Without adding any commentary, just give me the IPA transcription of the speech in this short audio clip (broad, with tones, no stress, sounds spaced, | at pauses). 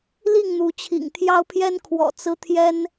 l i˥˨ ŋ n̪ u˨˦ t͡ɕʰ ḭ˨˩ ŋ t̪ʰ j ɑ˦ ʊ̯ pʰ j ɛ˦ n kʰ w ɔ̰˨˩ t͡s ɹ̩˦ t̪ʰ j ɛ˦ n